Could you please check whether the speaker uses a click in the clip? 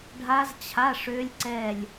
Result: yes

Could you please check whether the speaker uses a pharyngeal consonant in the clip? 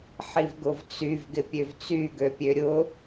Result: yes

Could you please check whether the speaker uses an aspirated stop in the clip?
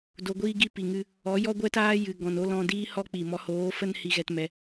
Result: no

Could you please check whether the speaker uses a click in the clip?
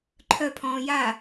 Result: yes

